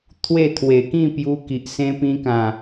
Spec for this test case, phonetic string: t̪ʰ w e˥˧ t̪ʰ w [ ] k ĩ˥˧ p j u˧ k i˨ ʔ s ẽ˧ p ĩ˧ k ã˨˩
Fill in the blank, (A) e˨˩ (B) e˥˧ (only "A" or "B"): A